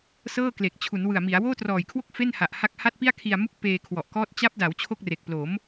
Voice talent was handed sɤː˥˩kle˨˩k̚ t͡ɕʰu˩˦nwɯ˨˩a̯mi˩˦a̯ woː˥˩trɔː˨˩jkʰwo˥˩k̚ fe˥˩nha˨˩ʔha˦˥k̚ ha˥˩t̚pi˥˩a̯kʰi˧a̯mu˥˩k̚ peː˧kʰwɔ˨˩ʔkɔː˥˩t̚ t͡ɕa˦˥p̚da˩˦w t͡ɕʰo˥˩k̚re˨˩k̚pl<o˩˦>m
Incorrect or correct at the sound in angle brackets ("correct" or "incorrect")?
correct